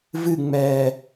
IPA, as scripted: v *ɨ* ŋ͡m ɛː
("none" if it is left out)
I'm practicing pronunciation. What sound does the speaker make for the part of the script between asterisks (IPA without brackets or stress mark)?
ɨ